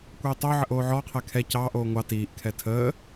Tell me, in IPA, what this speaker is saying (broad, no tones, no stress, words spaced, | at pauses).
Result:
kʷɛɪ̯tˤoʕəʔ oːʕɔqʰɛ kʰɛ cɑːʔoː ŋʷɑ tiːʔkʰɛ tʰəː